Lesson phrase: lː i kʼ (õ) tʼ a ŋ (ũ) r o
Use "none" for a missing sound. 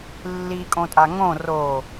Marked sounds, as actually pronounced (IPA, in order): õ, õ

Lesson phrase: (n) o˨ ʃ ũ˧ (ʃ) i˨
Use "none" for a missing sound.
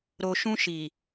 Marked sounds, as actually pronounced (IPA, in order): ɾ, ʃ

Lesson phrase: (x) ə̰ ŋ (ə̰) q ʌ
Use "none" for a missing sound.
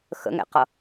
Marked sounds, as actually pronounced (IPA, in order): x, ɛ̰

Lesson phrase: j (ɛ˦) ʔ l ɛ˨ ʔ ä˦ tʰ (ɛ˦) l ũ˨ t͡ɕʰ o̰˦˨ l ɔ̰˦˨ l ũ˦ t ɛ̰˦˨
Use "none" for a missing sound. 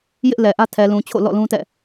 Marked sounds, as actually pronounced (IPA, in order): ɪ˦, ɛ˨

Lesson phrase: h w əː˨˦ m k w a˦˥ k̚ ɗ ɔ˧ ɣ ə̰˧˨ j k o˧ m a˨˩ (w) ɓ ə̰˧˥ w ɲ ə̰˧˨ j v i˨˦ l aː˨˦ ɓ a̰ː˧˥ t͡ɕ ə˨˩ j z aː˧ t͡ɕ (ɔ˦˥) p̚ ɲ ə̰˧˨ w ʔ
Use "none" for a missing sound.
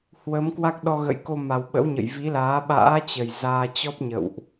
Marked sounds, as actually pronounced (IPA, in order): w, ɔ˦˥

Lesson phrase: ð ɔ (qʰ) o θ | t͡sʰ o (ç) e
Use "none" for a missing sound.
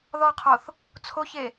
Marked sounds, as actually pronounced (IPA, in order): qʰ, ç

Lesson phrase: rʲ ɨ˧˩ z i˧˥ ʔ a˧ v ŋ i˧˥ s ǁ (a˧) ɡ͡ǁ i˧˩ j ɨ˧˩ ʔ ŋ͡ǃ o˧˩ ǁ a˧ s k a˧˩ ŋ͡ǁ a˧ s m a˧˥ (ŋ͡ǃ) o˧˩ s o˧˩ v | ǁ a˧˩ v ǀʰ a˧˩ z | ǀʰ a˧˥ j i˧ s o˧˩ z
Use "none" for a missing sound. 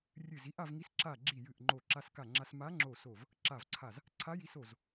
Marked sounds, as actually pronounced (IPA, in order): a˧˩, ŋ͡ǁ

